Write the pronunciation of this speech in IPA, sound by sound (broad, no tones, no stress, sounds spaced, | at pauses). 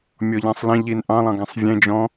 mʲ ɔ ʎ ã sˤ l ẽ ʎ i n ʔ ɑ̃ lˠ ɑ̃ ɡ ã sˤ vʲ ẽ d͡ʒ ɔ̃